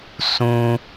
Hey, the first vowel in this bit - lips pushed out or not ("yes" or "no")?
yes